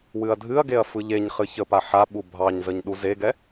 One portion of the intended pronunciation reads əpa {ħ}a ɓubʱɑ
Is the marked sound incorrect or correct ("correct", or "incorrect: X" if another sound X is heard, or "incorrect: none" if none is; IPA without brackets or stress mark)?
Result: correct